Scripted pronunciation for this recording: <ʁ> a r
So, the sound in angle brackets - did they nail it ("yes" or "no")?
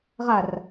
yes